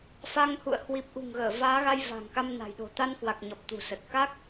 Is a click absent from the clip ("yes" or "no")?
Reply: yes